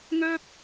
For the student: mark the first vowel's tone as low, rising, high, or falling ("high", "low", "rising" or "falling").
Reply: high